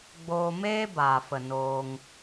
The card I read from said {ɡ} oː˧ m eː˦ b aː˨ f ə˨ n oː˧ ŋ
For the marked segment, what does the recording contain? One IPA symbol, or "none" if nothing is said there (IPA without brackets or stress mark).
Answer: ɡ͡b